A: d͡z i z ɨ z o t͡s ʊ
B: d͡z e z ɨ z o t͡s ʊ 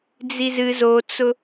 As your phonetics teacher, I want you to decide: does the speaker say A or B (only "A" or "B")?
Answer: A